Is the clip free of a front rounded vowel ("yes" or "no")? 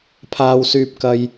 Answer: no